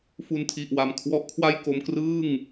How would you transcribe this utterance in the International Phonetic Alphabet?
fu˧ntʰi˨˩ʔwa˨˩m kʰwɔ˦˥ʔkʰwa˥˩jko˧m krɯː˥˩ŋ

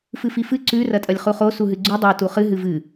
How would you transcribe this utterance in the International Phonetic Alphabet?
fɨfifɨ ǀʉ rɐtʼɐlʲχuχo suɦɨɡ͡ǀu dˤa tuχɨ ɦɨvɨ

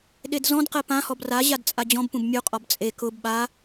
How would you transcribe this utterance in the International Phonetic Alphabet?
ɗedzɔ̃dqɛ pãhɔb raʑad t͡sʼad͡ʑɔ̃bpũb mʲuqʼɔb t͡sʼe kʊb ɓa

